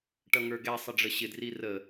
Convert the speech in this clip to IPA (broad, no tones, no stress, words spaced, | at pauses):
ʈʌŋə˞ɡɛ sˤəɖ͡ʐəɕɪ drirə